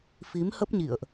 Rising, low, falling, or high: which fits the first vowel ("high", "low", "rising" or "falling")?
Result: rising